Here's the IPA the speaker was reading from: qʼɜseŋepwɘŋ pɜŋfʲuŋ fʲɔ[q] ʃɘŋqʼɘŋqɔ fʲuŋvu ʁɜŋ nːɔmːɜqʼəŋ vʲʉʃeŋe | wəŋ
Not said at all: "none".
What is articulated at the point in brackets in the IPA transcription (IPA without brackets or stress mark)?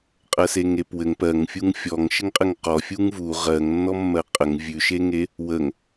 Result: ŋ